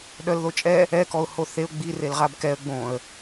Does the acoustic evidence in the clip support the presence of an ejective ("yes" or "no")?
yes